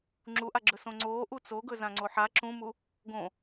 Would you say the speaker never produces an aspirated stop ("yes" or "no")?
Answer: yes